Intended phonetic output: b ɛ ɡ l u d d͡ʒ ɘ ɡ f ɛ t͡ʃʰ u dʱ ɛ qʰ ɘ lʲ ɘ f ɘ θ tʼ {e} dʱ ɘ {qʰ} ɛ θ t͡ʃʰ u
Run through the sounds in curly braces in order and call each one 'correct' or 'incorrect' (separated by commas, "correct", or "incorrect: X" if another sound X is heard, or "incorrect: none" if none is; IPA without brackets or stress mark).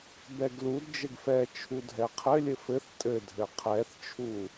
incorrect: ɘ, correct